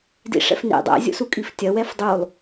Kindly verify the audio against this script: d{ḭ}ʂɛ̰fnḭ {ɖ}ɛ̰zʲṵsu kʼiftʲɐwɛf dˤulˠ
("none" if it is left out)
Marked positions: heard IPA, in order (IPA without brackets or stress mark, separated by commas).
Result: ḭ, dˤ